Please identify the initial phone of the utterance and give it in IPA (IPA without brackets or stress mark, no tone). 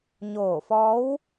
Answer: ɲ